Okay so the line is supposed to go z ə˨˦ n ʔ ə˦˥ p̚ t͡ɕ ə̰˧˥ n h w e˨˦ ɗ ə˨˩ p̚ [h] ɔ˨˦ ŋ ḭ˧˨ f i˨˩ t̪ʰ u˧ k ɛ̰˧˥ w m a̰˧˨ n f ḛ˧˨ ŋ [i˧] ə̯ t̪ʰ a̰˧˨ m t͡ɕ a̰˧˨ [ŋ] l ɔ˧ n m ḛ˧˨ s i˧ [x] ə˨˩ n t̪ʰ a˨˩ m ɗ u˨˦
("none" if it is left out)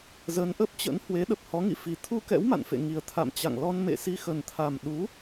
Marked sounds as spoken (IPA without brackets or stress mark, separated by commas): h, i˨˩, ŋ, x